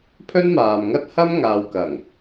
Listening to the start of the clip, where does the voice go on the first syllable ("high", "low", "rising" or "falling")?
high